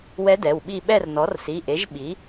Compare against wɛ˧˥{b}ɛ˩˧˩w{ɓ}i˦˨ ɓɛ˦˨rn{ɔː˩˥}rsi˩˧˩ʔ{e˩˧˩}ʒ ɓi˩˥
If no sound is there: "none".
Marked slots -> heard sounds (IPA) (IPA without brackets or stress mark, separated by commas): d, ɓ, ɔ˩˥, e˩˥